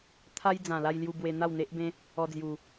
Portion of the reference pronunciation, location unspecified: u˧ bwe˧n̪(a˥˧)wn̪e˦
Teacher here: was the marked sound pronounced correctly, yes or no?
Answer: yes